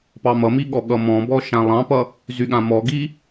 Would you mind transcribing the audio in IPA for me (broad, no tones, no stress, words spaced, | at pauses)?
pɑmʌmi ɠɔɠʌmɔ̃bɔ ʃãlˠɑ̃pʌ | zyɠãmɔɡi